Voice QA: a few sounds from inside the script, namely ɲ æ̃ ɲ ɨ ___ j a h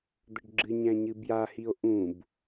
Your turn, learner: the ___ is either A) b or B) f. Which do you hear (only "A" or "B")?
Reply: A